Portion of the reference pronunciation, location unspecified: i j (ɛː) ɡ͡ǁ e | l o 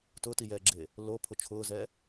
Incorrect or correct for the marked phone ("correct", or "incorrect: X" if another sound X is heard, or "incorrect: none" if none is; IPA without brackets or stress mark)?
correct